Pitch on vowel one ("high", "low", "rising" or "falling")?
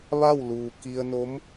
falling